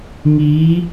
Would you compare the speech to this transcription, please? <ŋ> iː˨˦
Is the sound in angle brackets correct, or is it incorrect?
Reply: correct